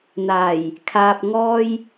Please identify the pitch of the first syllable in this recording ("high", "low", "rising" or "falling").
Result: low